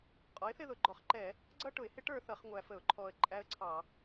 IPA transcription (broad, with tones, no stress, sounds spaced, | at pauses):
qʼ ɔ˩˥ ɪ̯ θ ɪ˥˧ ð ʊ˨˩ ɡ͡ǃ ɔ˨˩ χ ǃ ɛ˧˩˧ | ɡ͡ǀ ʌ˥˧ ʈ ʊ˧˩˧ ɪ̯ h ɪ˦˥ ʈ ə˞˥˧ θ ʌ˧˩˧ χ ŋʷ æ˨˩ f ə˧˩˧ ʊ̯ ǃʰ ɔ˨˩ ə̯ ǃʼ æ˦˥ ə̯ ǀʰ ɑ˧˩˧